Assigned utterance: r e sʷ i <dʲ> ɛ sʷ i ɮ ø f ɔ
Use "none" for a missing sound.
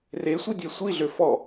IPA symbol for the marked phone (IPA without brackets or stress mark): dʲ